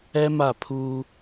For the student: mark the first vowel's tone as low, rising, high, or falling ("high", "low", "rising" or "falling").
high